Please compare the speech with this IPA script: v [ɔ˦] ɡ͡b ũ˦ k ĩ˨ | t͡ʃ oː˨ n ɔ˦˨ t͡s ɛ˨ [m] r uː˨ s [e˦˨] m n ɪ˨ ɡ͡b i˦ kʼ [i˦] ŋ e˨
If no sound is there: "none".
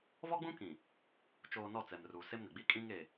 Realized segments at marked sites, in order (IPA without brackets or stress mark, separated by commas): ɔ˦, m, e˦, ĩ˦